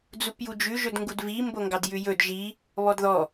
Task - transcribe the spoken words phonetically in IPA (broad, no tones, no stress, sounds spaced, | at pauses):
d͡z u p j u d͡ʒ ʉ ʒ ɵ d ŋ ɡ u d v i m b o ŋ ɡ ɑ d j ʉ j ɵ d ʒ i | β ɔ d ð ɔ